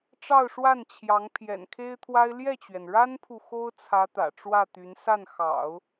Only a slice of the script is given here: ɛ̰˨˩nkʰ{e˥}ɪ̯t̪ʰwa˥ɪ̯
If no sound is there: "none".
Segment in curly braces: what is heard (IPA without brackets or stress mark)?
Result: e˥